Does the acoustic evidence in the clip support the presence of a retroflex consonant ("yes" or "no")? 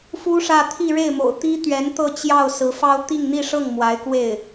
yes